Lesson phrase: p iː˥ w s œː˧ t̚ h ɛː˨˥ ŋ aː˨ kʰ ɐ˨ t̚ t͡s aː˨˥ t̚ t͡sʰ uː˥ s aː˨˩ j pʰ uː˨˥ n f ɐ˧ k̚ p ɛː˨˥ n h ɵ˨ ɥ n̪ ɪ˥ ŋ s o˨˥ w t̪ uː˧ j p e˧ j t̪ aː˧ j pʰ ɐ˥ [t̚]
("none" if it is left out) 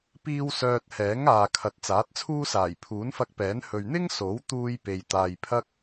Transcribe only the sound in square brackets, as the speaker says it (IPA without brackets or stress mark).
k̚